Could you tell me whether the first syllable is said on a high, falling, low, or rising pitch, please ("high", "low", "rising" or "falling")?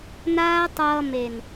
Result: high